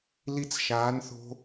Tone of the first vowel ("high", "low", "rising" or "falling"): high